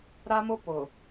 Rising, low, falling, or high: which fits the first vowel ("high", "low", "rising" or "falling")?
high